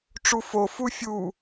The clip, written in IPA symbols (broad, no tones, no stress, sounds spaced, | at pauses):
ʈ͡ʂ u f o f u fʲ u